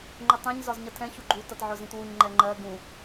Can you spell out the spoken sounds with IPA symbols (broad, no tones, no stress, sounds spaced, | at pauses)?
ŋ͡ǃ ʊ tˤ ɛ̃ ɲ z ɒ z ɲ ʌ tʰ ɛ̃ ç u ɡ͡ǃ u t ʌ t ʕ ʊ z ĩ t w u ɲ ŋ͡ǃ ɛ ŋ͡ǃ ɜ ɡ ũ